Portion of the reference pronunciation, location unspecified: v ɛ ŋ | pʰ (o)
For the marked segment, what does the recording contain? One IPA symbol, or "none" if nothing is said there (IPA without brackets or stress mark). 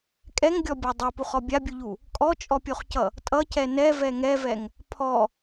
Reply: ɔ